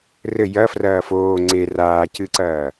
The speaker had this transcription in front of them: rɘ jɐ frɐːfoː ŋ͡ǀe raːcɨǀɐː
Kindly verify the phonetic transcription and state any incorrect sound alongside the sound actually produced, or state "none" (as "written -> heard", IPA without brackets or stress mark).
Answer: none